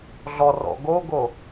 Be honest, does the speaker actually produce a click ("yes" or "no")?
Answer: no